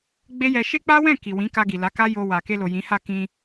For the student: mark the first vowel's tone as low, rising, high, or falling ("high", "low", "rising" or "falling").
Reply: high